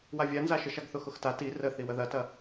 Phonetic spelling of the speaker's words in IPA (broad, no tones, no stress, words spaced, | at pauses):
wavʲanzaʃə ʃaɡθʊxʊxta ti rə θiwəðɐtɐ